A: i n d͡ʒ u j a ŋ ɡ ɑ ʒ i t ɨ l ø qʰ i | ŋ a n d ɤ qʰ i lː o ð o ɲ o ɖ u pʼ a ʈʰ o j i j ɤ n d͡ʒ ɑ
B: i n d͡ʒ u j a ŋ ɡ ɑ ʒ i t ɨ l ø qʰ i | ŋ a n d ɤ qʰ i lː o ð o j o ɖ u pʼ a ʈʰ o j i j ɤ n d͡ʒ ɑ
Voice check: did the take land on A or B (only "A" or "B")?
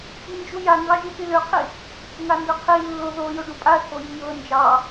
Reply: B